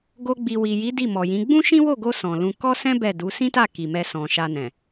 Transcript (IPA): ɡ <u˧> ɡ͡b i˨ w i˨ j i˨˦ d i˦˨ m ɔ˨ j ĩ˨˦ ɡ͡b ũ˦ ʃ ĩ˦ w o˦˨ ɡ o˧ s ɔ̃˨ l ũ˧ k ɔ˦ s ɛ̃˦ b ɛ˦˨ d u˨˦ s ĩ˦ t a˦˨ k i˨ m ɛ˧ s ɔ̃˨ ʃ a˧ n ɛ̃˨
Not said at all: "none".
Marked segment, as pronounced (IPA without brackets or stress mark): o˧